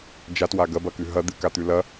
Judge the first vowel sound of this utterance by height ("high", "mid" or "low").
low